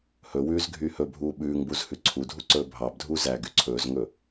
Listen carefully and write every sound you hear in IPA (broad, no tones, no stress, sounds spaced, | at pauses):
h ɵ w ʉː z ɡʱ yː h ɵ bʱ uː ɓ ʉː ŋ b u z h ʉ ǀʰ u dʱ u ǀ ɵː bʱ ɑ b dʱ uː z æː ɡ y ǀʰ ɵː z ŋ ɵ